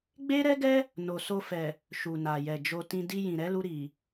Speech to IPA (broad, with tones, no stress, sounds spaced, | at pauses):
ɡ͡b e˦ ɾ ɛ˦ ɡ ɛ˦ | n o˨ s o˧ f ɛ˨ | ʃ u˨ n a˨ j ɛ˨ d͡ʒ o˧ t ĩ˧ d i˧ j ĩ˨ ɾ ɛ˨˦ l u˧ ɾ i˨